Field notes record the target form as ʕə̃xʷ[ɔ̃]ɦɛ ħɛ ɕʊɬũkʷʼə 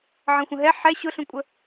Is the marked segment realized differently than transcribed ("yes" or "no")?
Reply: yes